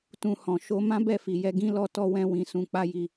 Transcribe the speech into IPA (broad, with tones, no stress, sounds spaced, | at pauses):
t ũ˨ h ɔ̃˨ ʃ o˧ m ã˦ b ɛ˦˨ f i˨ j ɛ˧ ɡ ĩ˦ l ɔ˦ t ɔ˧ w ɛ̃˧ w ĩ˨ s ũ˧ k͡p a˦ j i˧